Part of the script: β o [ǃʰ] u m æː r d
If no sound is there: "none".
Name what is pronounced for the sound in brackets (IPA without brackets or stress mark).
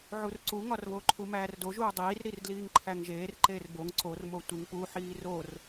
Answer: ǃʰ